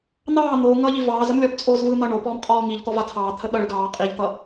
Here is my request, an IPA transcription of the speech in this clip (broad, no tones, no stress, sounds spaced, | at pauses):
n ɑː n̪ oː ŋ ʌː ʎ i v ɑː z ə m lʲ ɔ p t͡sʼ oː z v ɯ n̪ ʌ ɳ o p ɔː m qʼ ɔː ŋ i ʎ t̪ ɔ v a tʰ ɑː t̪ʰ ə ɗ ʌ ɭ ɯ ɡ ɑː qʼ i ʎ t̪ ʌ